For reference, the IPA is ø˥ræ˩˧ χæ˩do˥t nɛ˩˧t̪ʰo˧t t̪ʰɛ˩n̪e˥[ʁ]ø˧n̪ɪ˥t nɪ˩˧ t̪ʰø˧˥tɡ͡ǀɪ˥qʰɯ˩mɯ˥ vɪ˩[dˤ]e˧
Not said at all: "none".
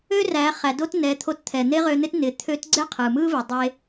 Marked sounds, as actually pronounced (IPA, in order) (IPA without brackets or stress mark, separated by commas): ʁ, dˤ